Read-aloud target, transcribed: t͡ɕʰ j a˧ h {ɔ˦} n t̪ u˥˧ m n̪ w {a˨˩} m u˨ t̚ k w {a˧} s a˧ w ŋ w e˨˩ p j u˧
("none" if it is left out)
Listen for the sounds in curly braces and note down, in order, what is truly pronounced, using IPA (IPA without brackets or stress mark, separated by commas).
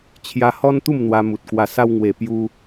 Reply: ɔ˦, a˧, a˨˩